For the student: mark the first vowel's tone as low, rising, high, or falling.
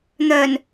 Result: low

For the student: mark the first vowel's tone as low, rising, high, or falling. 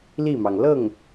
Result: falling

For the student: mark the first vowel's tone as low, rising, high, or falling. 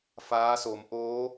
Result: rising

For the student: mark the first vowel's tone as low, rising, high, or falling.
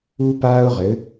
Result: high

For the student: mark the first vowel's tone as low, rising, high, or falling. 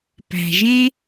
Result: low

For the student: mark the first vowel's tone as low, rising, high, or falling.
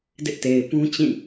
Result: high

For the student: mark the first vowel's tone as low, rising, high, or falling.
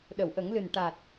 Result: low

